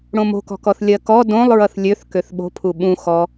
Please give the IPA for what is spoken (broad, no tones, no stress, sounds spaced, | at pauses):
ɽ õ m o̤ k ɔ̤ k ɔ θ lʲ ɜ k ɔ d õ lˠ ɹ ʌ θ lʲ ø θ k ø θ ɓ o̤ pʰ u ɓ ũ x ɔ